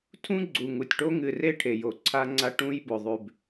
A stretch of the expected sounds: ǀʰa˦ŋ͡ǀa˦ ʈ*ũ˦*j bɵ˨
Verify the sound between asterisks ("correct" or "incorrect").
correct